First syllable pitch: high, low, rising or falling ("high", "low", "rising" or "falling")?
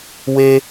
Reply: high